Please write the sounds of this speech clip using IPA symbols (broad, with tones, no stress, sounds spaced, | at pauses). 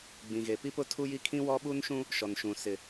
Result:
ɡ͡b ĩ˨ ɣ e˨ p i˦ p ʊ˦ tʰ u˦ j i˦ kʰ ĩ˦ w ɔ˦ ɓ u˦ n ʃ ũ˦ | ʃ ɔ˨ n ʃ ũ˨ s ɪ˨